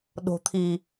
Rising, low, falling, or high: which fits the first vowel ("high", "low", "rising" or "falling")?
low